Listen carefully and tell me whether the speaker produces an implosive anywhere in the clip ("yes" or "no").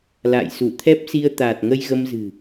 no